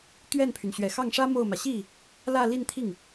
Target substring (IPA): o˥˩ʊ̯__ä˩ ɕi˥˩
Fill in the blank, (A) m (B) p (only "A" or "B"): A